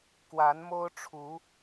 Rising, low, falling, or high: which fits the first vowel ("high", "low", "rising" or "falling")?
rising